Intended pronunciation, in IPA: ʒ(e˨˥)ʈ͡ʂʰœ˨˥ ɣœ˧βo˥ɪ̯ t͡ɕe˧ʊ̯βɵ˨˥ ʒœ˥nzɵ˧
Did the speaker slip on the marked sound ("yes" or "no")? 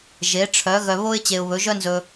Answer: no